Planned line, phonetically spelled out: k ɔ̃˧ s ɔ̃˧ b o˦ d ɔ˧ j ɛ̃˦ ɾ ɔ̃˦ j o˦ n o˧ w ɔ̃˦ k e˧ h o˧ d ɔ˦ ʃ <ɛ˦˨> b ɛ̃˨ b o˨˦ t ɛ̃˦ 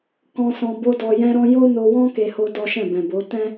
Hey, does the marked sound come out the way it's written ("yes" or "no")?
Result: no